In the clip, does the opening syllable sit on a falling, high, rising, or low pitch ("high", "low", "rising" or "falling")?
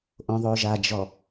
low